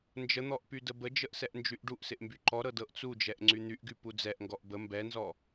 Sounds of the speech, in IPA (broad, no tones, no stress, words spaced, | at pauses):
nd͡ʒən̪ɔʔ pydəbəd͡ʒəʔ sɛʔnd͡ʒyʔɖuʔsɪʔ mbyǃɔɾɤ dɤʔt͡sud͡ʒɛʔ ŋ͡ǀyn̪yʔɡy pud͡zɛʔŋɡɔʔ bə mbɛnzɔ